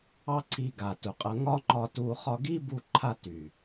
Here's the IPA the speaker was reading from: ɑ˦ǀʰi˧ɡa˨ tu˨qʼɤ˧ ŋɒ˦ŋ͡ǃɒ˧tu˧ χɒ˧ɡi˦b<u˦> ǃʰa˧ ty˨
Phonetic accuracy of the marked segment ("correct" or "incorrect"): incorrect